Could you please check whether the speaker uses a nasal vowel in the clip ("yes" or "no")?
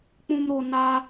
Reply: yes